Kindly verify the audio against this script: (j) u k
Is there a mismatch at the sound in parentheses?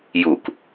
no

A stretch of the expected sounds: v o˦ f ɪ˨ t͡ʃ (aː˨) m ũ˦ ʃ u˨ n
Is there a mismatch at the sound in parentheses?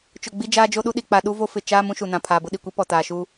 yes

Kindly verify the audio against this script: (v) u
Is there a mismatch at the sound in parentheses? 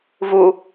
no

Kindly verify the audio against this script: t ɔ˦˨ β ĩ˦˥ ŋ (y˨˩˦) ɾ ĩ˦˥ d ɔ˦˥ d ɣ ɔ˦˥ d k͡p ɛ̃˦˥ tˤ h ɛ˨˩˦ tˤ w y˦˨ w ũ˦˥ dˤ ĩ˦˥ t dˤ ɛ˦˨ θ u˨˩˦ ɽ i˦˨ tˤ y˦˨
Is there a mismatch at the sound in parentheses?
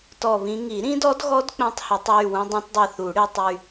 yes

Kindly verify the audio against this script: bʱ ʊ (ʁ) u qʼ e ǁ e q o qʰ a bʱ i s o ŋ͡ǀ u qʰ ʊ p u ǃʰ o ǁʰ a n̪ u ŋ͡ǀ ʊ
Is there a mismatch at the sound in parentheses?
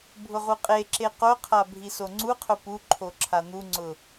no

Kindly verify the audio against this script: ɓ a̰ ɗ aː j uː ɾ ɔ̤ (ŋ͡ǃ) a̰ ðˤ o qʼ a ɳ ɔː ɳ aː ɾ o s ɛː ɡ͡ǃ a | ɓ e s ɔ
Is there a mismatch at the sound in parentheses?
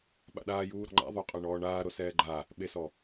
no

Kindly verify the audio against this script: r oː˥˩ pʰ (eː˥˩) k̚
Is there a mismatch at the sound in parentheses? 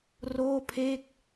no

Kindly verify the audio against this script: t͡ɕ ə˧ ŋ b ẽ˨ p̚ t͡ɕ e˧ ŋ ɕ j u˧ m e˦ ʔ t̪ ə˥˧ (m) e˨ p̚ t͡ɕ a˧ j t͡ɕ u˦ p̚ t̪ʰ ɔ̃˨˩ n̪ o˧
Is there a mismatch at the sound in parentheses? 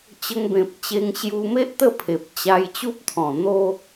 yes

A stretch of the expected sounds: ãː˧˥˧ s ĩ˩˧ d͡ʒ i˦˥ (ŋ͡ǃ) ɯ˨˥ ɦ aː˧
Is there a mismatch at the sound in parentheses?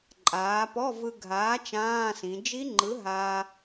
no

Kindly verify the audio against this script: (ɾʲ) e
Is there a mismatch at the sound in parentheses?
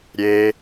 no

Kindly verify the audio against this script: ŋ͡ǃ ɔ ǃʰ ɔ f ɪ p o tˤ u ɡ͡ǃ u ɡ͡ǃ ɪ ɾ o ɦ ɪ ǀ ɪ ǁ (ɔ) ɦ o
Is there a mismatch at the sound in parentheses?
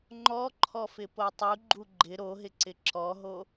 no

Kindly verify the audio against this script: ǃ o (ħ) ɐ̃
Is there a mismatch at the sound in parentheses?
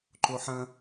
no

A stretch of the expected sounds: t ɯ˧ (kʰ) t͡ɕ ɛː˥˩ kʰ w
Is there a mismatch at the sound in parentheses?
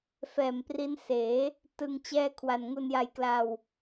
yes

